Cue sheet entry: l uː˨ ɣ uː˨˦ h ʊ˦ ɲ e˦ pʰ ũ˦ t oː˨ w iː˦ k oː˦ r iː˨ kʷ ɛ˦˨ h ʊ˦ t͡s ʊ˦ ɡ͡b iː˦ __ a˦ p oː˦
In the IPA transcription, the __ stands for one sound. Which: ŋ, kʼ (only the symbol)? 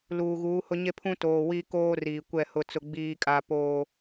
kʼ